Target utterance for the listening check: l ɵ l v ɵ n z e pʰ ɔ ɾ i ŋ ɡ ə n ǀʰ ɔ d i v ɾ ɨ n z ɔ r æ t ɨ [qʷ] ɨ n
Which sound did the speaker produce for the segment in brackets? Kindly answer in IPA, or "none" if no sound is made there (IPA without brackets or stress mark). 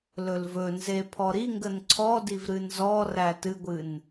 ɡʷ